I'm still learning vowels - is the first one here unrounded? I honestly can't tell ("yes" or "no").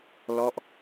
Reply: no